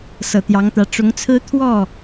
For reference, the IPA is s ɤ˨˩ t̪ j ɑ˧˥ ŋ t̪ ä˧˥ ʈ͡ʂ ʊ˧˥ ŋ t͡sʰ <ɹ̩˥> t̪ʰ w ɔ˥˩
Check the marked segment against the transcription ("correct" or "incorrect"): correct